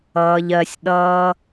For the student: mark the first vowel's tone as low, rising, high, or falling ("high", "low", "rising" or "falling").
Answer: low